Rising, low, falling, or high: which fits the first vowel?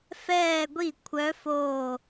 falling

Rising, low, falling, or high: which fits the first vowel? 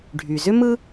low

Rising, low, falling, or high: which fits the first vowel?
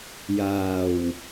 low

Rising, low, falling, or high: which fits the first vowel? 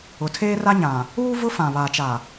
low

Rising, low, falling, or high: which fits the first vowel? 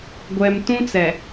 low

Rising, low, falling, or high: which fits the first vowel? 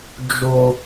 high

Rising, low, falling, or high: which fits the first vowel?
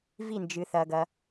falling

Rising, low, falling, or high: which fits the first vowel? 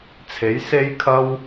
rising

